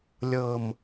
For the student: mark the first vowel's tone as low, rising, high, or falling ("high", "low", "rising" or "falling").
low